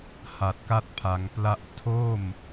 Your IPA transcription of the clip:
h a˨˩ t̚ k a˦˥ t̚ pʰ a˩˦ ŋ p l a˦˥ ʔ tʰ o˥˩ m

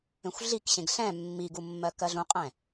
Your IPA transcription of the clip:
ẽ xʷ ɮ i k ɕ ẽ ɡ ɬ ɛ̃ mː i ɡ u mː ɜ k ɜ ɮ ũ qʼ ɛ̃

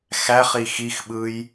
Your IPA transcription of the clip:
x æ χ i x i x ɓ ɯ j

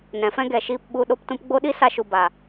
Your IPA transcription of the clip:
n ɛ̃˨˦ f ɛ̃˦ ɡ ɛ˨ ʃ iː˧ p ɓ u˧ ɗ o˧ p t ũ˧ p ɡ͡b o˦ ɗ i˦ s a˧ ʃ u˨ b a˨

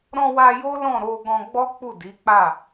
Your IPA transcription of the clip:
ɾ ɔ̃˧ w a˧ j o˦ l ɔ̃˦˨ ɾ o˧ ɡ ɔ̃˧ ɡ͡b ɔ˦ k͡p u˦˨ d i˨˦ k͡p a˦˨

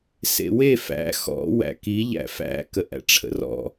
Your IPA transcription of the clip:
s ḛ w e f æ̰ x ɔ̰ w æ̰ k i ʎ æ̰ f æ̰ k ə ʔ æ̰ ʈ͡ʂʰ ə̰ r ɔ̰

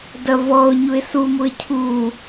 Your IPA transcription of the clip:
d ɐ v ɔ ʊ̯ ɲ u ɪ̯ s u m u ɪ̯ cʰ u

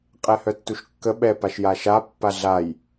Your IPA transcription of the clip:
qʼ ɛ h œ tː u ʃ kː ə ɓ ɛ p a ʃ j a ʃ a pː a ɮ a j

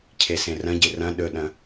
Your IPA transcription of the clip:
cʰ e s ẽ r ɐ̃ ɟ e r ɐ̃ ɗ ɵ ɗ ɐ̃

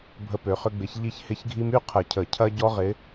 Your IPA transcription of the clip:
bʱ ə˦ p ø˨˦ χ ʏ˦ ɡ͡b ɪ˨˦ ç ʎ i˦ ç h ɪ˦ ç ɡʱ i˦ m y˥˨ qʰ ə˨˩˦ cʰ ə˨˩˦ cʰ ɐ˦ ɟ ɔ˦ ʁ ɪ˨˦

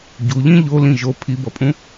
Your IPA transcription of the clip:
ɟ u ʎ ĩ ʎ o l ĩ ʒ o pʰ i b ʌ pʼ ũ

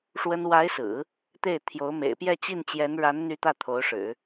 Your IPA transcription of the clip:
ʂ w ə˥ n w a˧˥ ɪ̯ s ɹ̩˨˩˦ | t̪ e˥˩ ɪ̯ t̪ʰ j o˧˥ ʊ̯ m ḛ˨˩ ɪ̯ p j ɛ˥˧ t͡ɕ i˥˩ n t͡ɕ j ɛ˧˥ n ɻ a˧˥ n n̪ y˧˥ t̪ ä˥˩ t̪ʰ o˧˥ ʊ̯ ʂ ɻ̩˨˩˦

